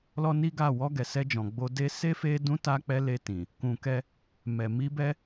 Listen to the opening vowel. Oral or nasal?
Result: oral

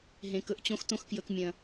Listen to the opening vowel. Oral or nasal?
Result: nasal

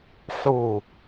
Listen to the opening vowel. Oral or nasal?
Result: oral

